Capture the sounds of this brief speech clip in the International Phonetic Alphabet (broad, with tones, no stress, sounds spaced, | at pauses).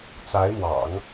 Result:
t͡s a˧˥ ɪ̯ m w ɑ̰˨˩˦ ŋ